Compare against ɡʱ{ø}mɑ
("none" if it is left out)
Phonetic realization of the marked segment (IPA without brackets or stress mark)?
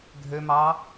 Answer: ø